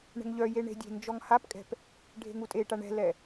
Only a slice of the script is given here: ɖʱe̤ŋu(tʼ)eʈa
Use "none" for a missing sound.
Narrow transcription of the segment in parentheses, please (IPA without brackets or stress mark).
tʼ